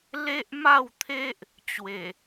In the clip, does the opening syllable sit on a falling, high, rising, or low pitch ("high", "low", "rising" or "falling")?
high